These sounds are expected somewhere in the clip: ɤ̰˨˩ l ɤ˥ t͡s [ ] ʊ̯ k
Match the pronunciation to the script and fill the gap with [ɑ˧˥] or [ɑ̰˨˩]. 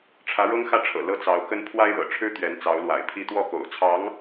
ɑ˧˥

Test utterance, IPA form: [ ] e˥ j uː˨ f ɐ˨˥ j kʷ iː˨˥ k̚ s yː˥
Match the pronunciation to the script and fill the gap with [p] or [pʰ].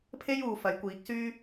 pʰ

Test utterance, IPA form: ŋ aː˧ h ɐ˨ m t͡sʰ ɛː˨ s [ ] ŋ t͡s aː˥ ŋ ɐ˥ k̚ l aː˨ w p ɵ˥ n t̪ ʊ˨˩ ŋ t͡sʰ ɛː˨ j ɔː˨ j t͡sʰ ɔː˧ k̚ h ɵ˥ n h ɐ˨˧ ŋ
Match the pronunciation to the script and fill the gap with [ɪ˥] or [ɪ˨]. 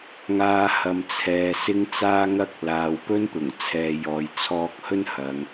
ɪ˥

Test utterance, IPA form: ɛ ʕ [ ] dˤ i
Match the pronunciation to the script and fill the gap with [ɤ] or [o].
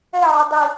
o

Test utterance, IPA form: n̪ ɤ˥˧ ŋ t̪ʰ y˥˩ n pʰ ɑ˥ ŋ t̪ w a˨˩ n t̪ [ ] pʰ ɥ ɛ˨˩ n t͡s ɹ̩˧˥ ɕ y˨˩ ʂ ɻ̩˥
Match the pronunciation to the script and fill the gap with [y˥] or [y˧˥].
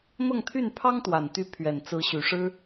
y˧˥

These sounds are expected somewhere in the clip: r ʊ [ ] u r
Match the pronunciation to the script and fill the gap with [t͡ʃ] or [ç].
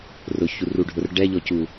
ç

